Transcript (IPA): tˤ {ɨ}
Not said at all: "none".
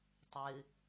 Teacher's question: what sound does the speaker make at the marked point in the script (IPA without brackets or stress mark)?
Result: ɨ